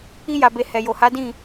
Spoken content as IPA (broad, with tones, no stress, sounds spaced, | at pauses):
i˧ j a˨ b e˨ h ɛ˨ j o˨ h a˨˦ d ĩ˦˨